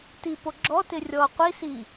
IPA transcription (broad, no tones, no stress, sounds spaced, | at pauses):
t i p o ɡ͡ǁ ɔ t ɪ rʲ ɔ qʷ i s i